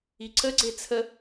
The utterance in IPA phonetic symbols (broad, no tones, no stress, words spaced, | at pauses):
iǀəɡ͡ǀe t͡sʰə